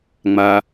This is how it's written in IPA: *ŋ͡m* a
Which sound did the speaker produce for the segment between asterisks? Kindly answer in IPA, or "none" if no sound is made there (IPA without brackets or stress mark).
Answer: ŋ͡m